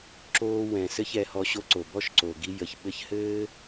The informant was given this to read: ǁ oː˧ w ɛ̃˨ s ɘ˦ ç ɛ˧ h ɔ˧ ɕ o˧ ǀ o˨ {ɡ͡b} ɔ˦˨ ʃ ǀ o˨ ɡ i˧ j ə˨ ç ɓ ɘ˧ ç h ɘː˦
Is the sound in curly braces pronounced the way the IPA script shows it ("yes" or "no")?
no